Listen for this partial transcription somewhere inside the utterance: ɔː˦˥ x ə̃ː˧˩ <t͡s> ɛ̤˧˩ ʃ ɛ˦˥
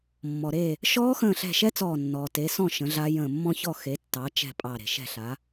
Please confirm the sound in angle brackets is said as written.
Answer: no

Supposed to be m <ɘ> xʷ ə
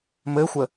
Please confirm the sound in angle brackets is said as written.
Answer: yes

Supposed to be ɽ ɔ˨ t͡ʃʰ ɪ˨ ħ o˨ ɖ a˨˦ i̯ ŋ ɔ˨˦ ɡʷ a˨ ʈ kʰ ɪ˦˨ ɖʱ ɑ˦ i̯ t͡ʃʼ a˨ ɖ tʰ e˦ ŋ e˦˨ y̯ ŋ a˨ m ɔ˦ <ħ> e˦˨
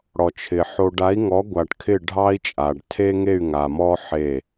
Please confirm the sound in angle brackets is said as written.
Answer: yes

